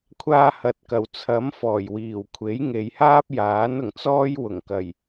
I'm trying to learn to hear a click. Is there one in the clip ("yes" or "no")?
no